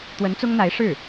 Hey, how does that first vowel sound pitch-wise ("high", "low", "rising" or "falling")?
rising